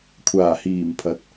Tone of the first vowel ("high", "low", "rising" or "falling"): low